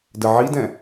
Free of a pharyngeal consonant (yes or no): no